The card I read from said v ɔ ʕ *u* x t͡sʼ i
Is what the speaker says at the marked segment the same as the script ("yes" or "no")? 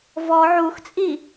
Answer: yes